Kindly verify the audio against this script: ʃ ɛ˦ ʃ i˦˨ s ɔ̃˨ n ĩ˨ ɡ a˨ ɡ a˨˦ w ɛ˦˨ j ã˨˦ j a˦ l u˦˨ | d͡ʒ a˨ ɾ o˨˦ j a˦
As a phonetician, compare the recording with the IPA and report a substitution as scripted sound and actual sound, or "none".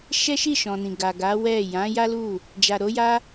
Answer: s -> ʃ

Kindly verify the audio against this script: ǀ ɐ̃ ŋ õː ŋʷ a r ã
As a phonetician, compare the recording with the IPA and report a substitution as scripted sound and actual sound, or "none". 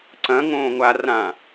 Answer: none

